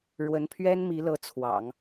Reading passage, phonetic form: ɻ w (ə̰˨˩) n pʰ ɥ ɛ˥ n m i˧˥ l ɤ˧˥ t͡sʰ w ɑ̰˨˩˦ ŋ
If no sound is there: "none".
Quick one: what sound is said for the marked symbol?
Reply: ə˧˥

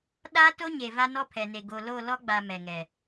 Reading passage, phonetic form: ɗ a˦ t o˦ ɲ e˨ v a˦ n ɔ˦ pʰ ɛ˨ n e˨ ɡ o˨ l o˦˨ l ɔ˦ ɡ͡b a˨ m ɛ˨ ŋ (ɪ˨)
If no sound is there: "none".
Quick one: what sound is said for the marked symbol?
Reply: ɛ˨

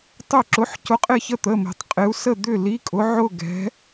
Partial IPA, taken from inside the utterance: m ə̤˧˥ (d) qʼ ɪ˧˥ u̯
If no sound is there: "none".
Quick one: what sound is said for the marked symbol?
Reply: tˤ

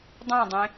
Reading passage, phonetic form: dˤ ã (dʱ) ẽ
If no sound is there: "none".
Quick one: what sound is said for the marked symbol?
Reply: dˤ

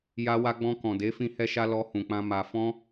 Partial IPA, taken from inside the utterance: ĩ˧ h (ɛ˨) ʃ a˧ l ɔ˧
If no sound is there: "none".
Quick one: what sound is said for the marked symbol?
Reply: ɛ˧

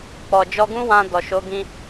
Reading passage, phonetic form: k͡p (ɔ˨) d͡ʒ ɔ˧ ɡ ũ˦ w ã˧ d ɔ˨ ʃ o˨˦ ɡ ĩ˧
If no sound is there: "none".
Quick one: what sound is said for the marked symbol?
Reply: ɔ˨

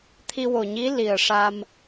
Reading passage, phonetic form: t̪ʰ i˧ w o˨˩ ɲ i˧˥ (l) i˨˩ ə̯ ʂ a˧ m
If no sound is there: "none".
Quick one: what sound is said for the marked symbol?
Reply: l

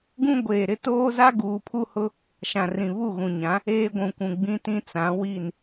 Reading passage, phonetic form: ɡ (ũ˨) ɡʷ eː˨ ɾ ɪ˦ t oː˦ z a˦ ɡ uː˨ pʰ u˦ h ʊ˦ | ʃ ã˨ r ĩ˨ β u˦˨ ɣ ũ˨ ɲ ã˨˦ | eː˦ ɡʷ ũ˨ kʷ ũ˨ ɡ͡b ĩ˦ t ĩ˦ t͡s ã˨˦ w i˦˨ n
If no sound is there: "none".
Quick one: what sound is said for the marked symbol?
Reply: ũ˦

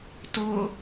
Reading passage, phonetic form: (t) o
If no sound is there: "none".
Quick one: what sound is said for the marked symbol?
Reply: t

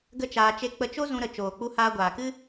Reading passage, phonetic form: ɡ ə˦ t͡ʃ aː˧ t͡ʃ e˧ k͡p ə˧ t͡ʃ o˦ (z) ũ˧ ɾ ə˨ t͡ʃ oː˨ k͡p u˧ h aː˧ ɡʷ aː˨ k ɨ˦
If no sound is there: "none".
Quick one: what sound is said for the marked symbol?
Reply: z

